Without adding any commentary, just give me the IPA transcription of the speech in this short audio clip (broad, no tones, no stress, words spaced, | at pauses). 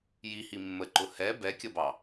jihi mːəǃʊ hɛ bɛkʲʌbɑ